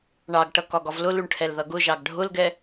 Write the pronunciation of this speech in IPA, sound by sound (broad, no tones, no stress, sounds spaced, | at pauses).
ɳ ɑ ɡ ʈ ʌ k ɒ ɡ ɒ v l ʊ l u ɳ ʈʰ ɛ l ð ʌ ɡ ʊ ʒ ɑ ɡ ɖʱ ʊ l ɡ ɛ